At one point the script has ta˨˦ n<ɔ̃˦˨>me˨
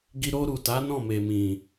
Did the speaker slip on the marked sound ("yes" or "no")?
no